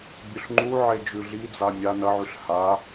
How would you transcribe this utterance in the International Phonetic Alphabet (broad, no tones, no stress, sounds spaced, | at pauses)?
bʲ ɵ ɬ ŋ͡ǃ u ʕ e d͡ʒ ʉ ɮ i d͡z a mʲ a n ɐ ʕ ʉ ɬ h a